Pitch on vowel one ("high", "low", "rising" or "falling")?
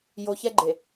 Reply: low